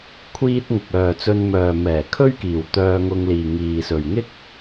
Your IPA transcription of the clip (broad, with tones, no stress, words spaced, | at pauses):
kʷʰiː˥t̚ ŋʊ˨k̚œː˨ t͡sɵ˧n mœː˨mɛː˨˩ kʰɵ˥ɥkiː˨˩w t̪œː˧ ŋʊ˧ŋliː˨ŋiː˨sɵ˨ɥ ŋɪ˥k̚